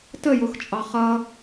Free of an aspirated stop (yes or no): yes